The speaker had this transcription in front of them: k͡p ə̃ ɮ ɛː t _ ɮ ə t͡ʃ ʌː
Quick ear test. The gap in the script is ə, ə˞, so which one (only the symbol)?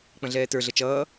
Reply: ə˞